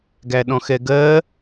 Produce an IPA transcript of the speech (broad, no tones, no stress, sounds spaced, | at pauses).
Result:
ɡ æ ɗ ɔ̃ x ɛ ɡ ɜ